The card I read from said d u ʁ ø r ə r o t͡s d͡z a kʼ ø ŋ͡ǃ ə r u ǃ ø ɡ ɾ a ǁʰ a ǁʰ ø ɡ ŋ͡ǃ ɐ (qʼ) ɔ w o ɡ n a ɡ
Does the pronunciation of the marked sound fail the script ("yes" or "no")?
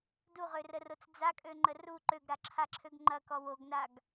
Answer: yes